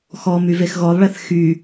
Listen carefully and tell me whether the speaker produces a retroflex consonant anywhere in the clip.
yes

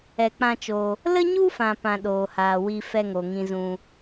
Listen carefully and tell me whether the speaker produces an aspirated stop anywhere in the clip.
no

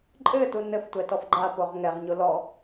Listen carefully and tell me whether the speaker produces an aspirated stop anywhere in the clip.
no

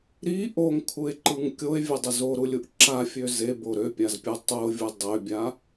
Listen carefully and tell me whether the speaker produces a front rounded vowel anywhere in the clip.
yes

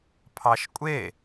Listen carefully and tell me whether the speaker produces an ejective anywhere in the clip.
yes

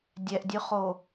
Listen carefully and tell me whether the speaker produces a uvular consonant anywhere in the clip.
yes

